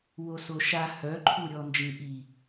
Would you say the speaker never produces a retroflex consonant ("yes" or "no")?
yes